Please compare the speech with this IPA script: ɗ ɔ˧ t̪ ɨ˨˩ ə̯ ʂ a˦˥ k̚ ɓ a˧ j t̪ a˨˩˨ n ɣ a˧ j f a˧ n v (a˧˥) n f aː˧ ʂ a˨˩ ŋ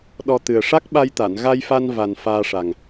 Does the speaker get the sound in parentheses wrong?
yes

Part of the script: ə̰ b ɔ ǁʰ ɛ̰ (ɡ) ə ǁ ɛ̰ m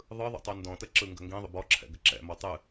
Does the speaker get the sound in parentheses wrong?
no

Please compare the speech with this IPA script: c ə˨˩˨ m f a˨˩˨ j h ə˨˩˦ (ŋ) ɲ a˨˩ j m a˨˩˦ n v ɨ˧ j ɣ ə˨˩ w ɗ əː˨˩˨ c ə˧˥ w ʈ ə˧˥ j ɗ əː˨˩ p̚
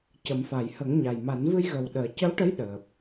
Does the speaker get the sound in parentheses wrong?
no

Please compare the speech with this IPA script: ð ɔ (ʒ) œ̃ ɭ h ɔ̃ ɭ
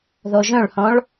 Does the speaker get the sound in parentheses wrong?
no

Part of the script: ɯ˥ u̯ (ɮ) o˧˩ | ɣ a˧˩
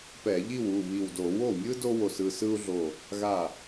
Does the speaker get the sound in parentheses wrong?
no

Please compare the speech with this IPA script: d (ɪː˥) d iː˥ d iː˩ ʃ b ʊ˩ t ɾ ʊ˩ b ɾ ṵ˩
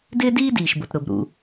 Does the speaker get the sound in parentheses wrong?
no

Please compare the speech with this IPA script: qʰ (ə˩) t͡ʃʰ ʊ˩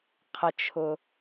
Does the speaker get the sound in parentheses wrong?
no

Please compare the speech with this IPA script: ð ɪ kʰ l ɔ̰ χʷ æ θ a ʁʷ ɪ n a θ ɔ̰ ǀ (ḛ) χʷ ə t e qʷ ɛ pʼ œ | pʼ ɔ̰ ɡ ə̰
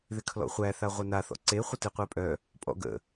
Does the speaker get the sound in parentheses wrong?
yes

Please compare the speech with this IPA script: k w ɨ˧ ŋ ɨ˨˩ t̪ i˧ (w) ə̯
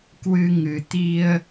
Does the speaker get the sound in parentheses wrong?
yes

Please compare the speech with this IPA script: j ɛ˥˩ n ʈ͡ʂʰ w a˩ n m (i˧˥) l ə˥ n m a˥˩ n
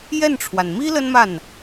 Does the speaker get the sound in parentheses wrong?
yes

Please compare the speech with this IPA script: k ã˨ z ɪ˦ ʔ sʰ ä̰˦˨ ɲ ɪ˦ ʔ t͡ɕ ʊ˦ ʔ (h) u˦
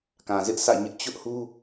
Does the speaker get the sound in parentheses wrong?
no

